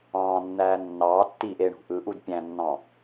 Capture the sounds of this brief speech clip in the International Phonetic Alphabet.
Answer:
ɑ̃ːnːæː nːɑːtːiːʔ eɳṳ ʔɯ ʔudpʲæ̃nːɑ̃

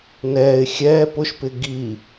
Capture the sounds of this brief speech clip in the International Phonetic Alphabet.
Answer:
nɛːɪ̯ xʲɛː pʊʃpɪ ɡi

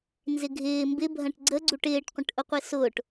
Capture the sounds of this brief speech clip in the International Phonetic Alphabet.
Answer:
nzɪɡʱɪː mbɪbʱɐ̃ʈ ɡ͡ǀəɡ͡ǀuʈ ɪːʈqʷə̃ʈʔʊqʷɪ sʊːʈ

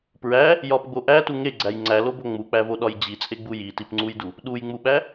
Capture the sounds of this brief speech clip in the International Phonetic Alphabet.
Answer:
pɹæ | jɒpɡ͡bo ʔætu ŋeɡ͡ǀæj ŋ͡ǀælobo ŋ͡muk͡pævoɗɒj d͡ʑit͡sʼeɡ͡bu jitipŋ͡ǀujdu | ɗujŋ͡muɓæ

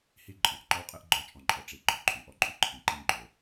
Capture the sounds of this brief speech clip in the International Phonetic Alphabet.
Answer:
hi˧ ǃʼɔ̃˨˩ʔǃɔ˧wqʼe˧ʔ ɡ͡ǃɔ˧ t͡ʃʼɔ̃˨˩ǃʼɔ˨˩ ʈ͡ʂi˨˩ ɡ͡ǃɔ˨˩ǃʼy˨˩ʔɔ˧ǃʼy˧ ǃʰĩ˨˩ǃĩ˧ ɡ͡ǃo˨˩

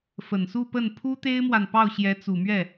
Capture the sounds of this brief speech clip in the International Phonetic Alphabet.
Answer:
fə˨˩nsu˥˧pə˥˩n pʰu˥t̪e˥ɪ̯mwa˨n pɑ˥˩ʊ̯ɕjɛ˧˥t͡su˨˩mɥɛ˥˩

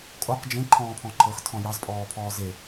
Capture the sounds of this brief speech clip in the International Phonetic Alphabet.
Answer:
kʼoq d͡ʒẽ ǃʰɔ̃ːpʰɔ̃ǃʰɤx tʰɔ̃jɑz pʼɔːpʰɔːze

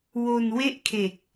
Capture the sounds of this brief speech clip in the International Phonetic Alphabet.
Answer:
wo˧nwe˥˩ʔkʰe˨˩k̚

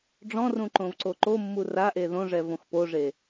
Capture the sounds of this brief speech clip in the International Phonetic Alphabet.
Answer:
ɖ͡ʐɔ̃rũ ǃõvǀoǃomːu raʔe ðõʐɛ võxpoʐe

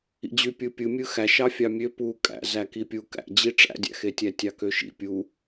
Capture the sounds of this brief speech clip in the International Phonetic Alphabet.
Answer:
ḭd͡ʑy pʲɯpʲɯmʲɯ xæʃɑ fʲɑmʲø pu kʼæ̰ zækipʲu kæ̰d͡ʑi ʈ͡ʂæ̰dʲæ̰xetʲæ tʲɑkøʃḭ pʲu

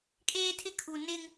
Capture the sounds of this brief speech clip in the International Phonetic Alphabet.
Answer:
kʼeː˦tʰɪ˦kʰu˨ nɪ˦ŋ

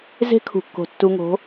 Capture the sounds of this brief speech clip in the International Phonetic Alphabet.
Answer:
ze̤˦kʰṳ˨kːo̤˨ tːu˨ŋo̤˨˦

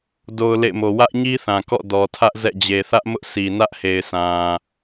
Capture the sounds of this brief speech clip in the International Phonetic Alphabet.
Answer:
do˨ʊ̯ lḛ˦˨ɪ̯mo˨ wä˦ʔɲi˦θã˨kɔ̰˦˨ dɔ˨tʰä˦ʔzɛ̰˦˨ d͡ʑe˨ θä˦ʔmʊ˦ʔ sʰi˨nä˦ʔhe˨ɪ̯ sã˨

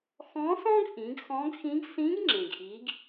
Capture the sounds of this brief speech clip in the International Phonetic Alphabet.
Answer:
xɔ̃˧˥sɔ̃˥ɡʔĩ˩˧ɡ xɔ̃˧˥ɡxĩ˧˥ɡ sĩ˧˥ɡŋ͡ǁẽ˩ɡʔi˩˧ɡ

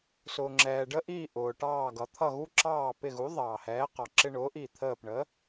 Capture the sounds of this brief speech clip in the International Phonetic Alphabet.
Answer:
sʊː˩ŋ͡ǁɛː˩ɖə˧ʔiː˧˩ ʔʊː˩ʈɑː˧˩ ɡʌ˩t̪ʰʌ˧˩ɣu˧ǁɑː˧˩ pɪ˧˩ɣu˩˥ðˤɑː˩ hɛː˩˥qɑ˩ ǁɪ˧ɳʊː˩˥ʔi˧˩ t̪ʰəː˧˩pɳə˩˥

